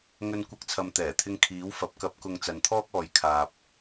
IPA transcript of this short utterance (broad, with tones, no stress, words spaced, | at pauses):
ŋɵ˧nkʷɐ˧k̚t͡sʰɐ˨m t̪ɛː˨˩t̪ʰɪ˧ŋ kʰiː˨˥wfɐ˨˥p̚kɐ˧p̚ kʊ˨ŋ t͡sɐ˨nt̪ʰɔː˥k̚ɔː˨˧jkʰaː˨p̚